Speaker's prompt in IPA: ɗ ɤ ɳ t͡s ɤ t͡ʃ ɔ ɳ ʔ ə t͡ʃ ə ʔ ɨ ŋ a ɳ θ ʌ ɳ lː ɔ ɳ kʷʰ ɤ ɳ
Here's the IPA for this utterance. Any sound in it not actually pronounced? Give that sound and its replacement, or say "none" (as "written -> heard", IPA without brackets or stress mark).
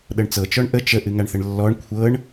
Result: ʌ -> ə